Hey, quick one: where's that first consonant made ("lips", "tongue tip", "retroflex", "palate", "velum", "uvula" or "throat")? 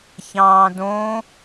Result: palate